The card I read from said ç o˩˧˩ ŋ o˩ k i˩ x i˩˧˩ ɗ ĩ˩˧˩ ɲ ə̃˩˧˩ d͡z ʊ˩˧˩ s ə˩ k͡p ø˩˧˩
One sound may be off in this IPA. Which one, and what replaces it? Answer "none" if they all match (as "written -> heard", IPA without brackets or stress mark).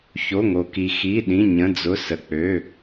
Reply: none